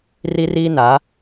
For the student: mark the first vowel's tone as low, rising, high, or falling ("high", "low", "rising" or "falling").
high